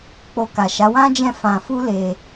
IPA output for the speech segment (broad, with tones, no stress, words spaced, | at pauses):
k͡po˧ ka˨ʃa˨˦wã˦d͡ʒɛ̃˦˨ fã˧ fu˦le˧